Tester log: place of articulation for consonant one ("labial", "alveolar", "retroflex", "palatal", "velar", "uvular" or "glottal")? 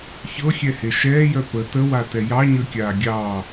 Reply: palatal